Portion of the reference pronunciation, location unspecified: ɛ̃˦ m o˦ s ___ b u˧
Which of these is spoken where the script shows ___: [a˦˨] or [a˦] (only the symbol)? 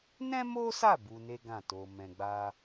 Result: a˦˨